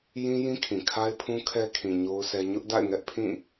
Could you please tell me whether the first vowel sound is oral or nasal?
nasal